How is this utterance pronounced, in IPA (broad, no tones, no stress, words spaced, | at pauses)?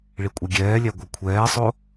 ɭikʷʼɛɡʲɛːlʲæ ɡʷœkʷʰɛːsˤo